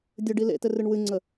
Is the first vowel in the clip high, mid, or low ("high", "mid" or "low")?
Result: mid